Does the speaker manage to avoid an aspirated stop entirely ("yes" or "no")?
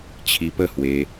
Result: no